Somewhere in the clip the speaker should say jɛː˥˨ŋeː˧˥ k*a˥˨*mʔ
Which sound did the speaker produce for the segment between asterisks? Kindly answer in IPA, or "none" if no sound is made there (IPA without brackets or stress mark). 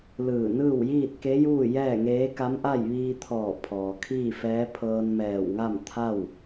a˧˥